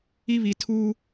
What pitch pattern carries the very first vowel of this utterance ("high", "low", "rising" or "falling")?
high